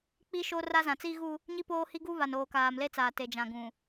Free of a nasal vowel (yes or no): no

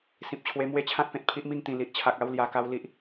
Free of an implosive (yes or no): yes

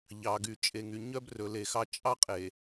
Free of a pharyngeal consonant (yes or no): yes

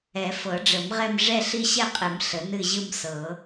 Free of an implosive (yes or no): yes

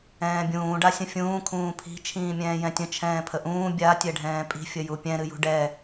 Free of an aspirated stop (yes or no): no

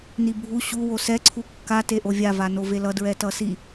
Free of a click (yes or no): no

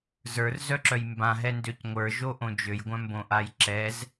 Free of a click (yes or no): no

